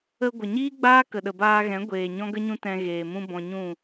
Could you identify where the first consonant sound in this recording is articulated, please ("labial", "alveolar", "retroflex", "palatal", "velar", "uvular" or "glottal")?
velar